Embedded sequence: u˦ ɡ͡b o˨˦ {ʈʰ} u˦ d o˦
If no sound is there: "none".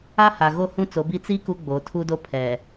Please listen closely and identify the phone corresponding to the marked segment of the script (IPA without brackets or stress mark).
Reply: tʰ